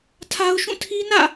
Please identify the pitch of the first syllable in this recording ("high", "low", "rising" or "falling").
high